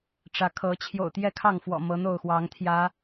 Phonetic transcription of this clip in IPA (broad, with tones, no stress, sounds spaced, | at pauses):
ʈ͡ʂ ä˨˦ kʰ ɤ˨˦ t͡ɕʰ j o̰˨˩ ʊ̯ t̪ j ɛ˥˨ kʰ ɑ˥˨ ŋ f w ɔ̰˨˩ m ɤ˨˦ n̪ o˥˨ ʊ̯ x w ɑ˨˦ ŋ t̪ʰ j ä˨˦